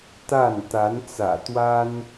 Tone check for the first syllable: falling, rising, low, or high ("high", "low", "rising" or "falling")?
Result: falling